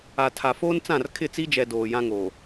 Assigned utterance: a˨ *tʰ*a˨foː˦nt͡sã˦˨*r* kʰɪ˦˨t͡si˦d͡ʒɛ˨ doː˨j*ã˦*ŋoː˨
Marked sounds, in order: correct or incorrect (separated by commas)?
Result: correct, correct, correct